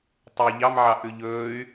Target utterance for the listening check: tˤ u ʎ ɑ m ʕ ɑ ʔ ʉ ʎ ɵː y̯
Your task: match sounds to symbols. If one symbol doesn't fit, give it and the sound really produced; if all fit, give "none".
none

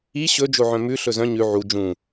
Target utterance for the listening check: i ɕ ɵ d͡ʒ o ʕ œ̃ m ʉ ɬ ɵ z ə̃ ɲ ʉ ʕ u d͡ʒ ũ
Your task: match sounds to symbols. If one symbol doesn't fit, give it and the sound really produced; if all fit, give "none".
ə̃ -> œ̃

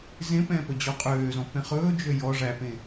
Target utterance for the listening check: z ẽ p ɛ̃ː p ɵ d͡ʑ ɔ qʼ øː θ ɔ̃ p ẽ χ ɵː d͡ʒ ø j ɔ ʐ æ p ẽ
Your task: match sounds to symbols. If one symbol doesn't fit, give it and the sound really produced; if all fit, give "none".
θ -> z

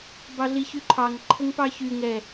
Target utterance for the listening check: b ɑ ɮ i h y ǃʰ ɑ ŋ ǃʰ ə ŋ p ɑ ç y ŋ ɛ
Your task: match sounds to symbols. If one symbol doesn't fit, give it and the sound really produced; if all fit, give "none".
h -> ç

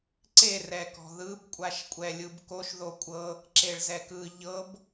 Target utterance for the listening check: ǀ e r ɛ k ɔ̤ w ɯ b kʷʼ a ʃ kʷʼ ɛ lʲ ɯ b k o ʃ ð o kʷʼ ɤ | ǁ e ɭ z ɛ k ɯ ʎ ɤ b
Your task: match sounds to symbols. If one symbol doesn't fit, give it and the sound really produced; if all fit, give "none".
w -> ð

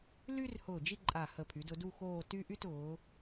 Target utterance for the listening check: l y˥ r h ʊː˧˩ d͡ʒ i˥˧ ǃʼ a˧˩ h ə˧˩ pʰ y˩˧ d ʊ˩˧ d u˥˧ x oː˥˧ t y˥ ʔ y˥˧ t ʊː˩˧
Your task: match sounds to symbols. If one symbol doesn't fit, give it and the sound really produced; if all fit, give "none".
none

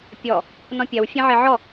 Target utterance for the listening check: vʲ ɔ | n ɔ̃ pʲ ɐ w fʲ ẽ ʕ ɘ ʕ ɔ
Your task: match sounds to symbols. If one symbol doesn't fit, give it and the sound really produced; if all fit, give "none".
vʲ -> pʲ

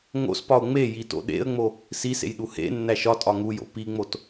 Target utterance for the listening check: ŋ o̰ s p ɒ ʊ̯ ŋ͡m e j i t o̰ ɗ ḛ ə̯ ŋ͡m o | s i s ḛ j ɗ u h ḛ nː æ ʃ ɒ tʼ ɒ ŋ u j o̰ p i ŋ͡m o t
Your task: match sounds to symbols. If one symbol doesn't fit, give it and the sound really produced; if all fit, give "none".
none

